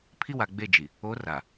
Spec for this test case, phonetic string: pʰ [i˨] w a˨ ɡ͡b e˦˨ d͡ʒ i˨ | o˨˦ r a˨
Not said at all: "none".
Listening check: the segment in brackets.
i˦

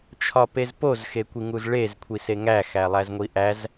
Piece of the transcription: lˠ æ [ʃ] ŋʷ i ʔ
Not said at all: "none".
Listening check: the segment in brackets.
z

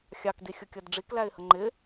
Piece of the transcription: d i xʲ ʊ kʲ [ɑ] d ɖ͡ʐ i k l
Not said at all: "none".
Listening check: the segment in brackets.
ʌ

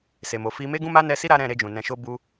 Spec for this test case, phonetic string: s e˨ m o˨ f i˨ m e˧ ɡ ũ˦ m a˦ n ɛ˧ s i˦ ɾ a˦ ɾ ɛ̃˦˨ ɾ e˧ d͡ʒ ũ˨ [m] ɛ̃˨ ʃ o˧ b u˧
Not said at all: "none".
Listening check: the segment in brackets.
n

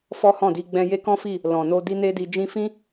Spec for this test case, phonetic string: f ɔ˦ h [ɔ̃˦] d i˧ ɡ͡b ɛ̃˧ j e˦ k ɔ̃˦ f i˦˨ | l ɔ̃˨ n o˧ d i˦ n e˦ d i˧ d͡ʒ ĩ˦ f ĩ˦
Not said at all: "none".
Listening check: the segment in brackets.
ɔ̃˦˨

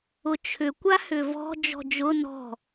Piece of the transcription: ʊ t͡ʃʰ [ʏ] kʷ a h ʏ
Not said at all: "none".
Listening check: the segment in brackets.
ʏ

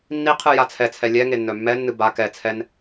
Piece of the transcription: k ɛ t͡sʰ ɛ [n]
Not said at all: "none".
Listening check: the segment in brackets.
n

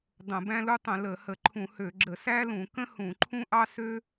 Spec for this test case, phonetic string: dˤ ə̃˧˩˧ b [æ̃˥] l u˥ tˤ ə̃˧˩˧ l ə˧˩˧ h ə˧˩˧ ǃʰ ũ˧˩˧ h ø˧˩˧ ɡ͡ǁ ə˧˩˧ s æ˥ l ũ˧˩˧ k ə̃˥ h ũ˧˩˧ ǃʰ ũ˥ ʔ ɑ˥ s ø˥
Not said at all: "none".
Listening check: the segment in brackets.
æ̃˥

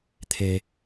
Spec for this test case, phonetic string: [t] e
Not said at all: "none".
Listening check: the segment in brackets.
t̪ʰ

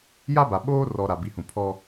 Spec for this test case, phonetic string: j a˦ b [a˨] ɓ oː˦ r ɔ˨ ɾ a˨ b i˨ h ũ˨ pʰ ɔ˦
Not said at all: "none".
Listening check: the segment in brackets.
a˨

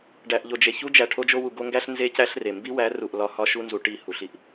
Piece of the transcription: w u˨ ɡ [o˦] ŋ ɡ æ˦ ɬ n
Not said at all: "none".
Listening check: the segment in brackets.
o˦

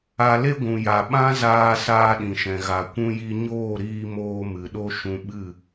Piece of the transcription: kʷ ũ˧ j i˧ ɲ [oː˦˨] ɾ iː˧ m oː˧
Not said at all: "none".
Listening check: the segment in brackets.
oː˦˨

